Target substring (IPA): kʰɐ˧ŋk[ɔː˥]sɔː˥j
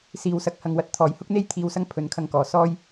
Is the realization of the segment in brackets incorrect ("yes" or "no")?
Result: yes